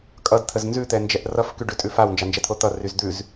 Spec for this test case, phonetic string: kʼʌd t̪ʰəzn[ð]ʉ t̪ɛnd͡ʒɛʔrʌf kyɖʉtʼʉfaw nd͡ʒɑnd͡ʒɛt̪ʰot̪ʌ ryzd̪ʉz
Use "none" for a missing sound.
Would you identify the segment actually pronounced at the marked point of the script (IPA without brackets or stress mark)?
z